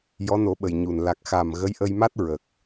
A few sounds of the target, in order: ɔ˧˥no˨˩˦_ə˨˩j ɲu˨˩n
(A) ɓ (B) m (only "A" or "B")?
A